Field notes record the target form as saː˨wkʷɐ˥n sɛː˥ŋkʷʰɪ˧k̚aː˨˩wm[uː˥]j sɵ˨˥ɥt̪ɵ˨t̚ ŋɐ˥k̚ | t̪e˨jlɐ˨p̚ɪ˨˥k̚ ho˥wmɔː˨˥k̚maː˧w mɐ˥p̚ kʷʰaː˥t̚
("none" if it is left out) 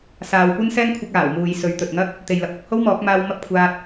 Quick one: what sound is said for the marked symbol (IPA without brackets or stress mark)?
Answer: uː˨